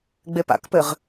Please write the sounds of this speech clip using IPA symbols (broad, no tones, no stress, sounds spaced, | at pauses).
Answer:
ɡ͡b e p a̰ k p ɘ ʁ